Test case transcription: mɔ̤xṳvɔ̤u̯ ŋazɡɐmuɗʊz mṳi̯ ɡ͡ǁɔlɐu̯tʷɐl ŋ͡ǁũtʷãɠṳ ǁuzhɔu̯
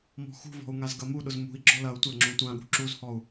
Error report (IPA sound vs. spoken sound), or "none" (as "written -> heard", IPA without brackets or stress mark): none